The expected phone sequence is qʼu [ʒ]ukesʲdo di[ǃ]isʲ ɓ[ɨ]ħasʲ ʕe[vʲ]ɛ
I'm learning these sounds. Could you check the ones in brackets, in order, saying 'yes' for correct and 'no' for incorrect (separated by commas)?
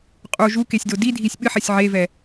yes, no, yes, no